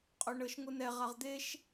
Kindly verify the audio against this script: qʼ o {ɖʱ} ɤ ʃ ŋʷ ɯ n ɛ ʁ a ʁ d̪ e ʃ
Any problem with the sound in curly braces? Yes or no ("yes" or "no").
yes